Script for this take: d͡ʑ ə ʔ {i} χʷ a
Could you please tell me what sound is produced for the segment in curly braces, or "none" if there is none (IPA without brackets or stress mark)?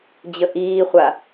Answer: iː